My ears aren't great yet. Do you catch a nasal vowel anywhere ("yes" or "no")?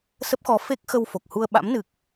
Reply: no